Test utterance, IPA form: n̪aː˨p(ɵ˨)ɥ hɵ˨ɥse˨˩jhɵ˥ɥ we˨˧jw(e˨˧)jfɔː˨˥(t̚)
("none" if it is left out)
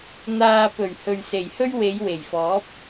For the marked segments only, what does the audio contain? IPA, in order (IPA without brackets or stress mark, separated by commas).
ɵ˨˩, e˨˩, p̚